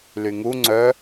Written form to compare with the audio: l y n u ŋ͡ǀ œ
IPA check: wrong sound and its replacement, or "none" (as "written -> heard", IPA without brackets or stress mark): n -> ŋ